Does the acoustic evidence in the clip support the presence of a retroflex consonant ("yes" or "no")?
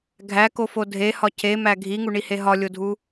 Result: yes